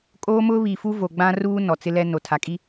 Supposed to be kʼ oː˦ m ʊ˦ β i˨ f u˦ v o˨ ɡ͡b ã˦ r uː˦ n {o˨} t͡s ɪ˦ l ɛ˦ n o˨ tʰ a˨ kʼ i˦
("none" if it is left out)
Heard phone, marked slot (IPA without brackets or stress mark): ɔ˨